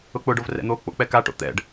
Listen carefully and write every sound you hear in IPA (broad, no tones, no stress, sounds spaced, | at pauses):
ʊ k͡p ʊ ɖ o v r ɛ̰ n̪ o k͡p o̰ k͡p ɛ k a ʈ o̰ t̪ ɛ̰ ɖ